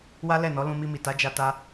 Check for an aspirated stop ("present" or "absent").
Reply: absent